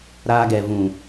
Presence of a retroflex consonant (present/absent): absent